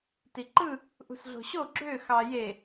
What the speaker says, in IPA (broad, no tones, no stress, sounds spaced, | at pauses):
t i ǃ ɯ | ʔ ṳ s ɮ o̤ ɕ o ɡ͡ǁ ø x ɑ j e